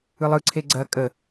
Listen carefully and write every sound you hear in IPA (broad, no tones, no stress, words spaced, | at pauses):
ɯlˠɯǀʰe ɡ͡ǀɐ kʼə